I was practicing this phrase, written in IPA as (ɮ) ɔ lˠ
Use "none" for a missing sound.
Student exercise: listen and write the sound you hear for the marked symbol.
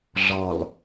ɮ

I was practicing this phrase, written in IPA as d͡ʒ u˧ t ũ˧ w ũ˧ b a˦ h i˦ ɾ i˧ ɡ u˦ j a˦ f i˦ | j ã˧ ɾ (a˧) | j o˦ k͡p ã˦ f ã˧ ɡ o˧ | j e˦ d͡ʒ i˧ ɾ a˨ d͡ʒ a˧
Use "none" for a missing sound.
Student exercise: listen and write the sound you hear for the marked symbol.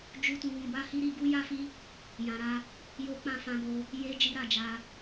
a˦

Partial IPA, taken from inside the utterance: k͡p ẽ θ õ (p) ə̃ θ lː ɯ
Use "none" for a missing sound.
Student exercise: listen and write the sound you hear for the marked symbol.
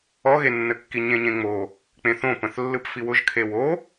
p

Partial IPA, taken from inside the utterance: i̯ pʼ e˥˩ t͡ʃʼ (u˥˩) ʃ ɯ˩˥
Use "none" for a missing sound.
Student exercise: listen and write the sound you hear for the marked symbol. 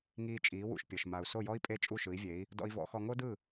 u˥˩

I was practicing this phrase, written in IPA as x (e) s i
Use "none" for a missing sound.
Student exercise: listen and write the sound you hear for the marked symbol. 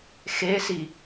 e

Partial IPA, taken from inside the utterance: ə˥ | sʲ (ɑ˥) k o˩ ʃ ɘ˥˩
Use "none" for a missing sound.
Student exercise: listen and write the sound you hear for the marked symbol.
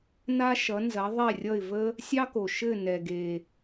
ɑ˥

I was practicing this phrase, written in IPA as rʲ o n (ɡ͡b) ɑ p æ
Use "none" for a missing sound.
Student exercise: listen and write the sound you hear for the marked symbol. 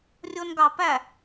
ɡ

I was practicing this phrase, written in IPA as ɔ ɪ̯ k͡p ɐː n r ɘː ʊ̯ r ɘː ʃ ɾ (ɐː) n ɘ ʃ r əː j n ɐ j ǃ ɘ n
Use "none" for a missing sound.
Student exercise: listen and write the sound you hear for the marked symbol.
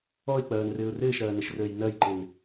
ɐː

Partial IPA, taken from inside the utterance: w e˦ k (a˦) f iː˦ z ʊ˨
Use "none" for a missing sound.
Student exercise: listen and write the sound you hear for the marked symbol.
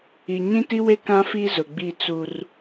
ã˦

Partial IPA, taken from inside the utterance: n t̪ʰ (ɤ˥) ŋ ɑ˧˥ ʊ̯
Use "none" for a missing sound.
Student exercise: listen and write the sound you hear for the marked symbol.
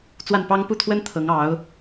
ɤ˧˥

